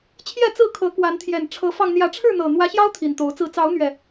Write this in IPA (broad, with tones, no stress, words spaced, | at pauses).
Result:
t͡ɕʰjɛ˥˨t͡sɹ̩˥˨kʰɤ˨˦ kwa˨˦nt̪ʰjɛ˨˩n ʈ͡ʂʰɤ˨˦fɑ˧ŋ n̪jä˨˦ʈ͡ʂʰɻ̩˥˨n̪ɤ˨˩ n̪wä˨˦ɕjɑ˦ʊ̯ t̪ʰi˨˩nt̪o˨˦ʊ̯t͡sɹ̩˥˨ t͡sɑ˨˦ʊ̯n̪ɥɛ˨˩